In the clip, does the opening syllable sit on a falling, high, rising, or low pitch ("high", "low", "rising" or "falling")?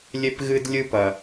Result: high